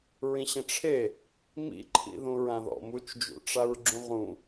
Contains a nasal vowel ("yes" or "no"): yes